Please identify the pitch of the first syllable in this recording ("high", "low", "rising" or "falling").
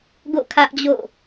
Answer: falling